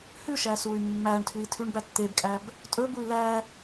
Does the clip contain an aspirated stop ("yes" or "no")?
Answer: yes